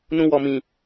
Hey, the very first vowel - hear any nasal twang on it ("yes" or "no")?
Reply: yes